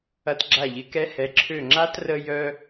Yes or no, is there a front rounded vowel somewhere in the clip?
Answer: yes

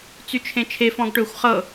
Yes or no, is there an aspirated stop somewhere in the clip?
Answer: yes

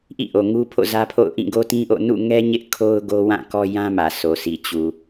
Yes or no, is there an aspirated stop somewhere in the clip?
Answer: yes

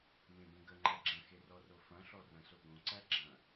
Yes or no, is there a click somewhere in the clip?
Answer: yes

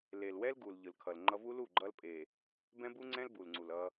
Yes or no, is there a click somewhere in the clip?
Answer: yes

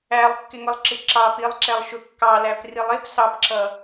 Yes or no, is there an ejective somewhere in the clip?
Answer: no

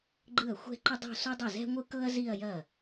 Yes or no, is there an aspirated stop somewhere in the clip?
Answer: no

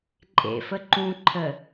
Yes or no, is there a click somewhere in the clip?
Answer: yes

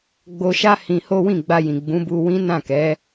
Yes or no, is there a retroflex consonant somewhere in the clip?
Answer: no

